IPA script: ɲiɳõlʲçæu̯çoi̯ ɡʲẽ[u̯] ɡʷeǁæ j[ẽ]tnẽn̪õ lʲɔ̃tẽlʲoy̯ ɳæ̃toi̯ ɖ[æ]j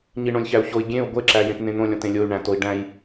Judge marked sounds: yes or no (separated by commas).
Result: yes, yes, no